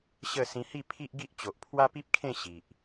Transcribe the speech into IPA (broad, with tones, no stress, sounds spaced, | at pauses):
ɕ ə˥˧ s ĩ˧ h i˥˧ pʰ i˦ ʔ ɡ i˦ ʔ t͡ɕ o˨ ʔ pʰ w a˦ p i˦ p̚ kʰ ẽ˥˧ ɕ i˨ ʔ